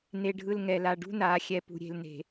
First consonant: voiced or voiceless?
voiced